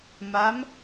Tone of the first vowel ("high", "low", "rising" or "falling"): rising